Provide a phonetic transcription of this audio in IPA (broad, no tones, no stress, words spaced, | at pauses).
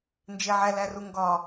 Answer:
nd͡ʒeʕæ læruŋɡɒ